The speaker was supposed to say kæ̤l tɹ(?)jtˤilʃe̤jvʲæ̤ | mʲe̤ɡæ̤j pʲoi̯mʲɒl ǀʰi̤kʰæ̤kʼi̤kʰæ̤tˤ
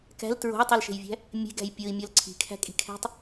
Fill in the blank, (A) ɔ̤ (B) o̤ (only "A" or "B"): B